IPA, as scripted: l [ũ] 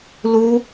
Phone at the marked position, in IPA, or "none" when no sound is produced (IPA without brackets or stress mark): u